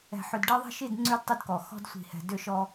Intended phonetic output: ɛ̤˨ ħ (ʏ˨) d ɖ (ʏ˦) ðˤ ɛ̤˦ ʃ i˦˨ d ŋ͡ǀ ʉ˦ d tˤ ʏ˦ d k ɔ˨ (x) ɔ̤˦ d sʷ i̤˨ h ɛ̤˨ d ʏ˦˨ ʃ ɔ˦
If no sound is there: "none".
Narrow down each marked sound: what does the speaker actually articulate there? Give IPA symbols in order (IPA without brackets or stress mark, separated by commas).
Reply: ʏ˨, ɛ˦, x